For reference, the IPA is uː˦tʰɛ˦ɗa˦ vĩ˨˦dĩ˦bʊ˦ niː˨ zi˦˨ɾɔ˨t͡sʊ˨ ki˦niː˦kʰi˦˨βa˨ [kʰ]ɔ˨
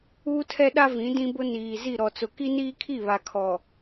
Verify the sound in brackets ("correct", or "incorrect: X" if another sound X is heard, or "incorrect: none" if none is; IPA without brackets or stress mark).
correct